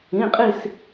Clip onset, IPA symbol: ĩ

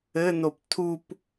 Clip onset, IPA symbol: ɘ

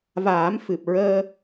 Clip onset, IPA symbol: v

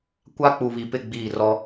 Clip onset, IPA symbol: kʷ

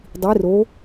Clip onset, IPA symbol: dˤ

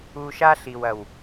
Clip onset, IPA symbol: u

